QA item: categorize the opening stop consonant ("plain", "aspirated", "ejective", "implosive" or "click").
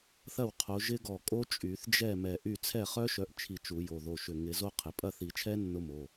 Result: aspirated